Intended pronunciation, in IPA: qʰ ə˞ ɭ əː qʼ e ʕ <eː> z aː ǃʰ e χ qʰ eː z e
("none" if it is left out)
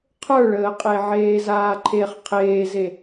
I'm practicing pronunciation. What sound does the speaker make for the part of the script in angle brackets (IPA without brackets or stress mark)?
eː